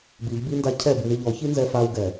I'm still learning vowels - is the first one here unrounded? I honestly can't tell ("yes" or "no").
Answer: yes